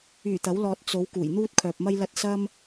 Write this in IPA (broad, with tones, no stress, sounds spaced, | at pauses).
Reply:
yː˨˩ t̪ ɐ˨˥ w l ɔː˧ t̚ t͡s o˨˧ w k uː˨˩ j n̪ uː˥ t̚ kʰ œː˨ p̚ m ɐ˥ j l ɐ˥ t̚ s ɐ˥ m